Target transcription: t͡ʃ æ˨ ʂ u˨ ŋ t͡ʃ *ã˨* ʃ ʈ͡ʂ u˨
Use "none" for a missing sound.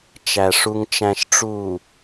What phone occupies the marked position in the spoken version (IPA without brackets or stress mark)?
æ̃˨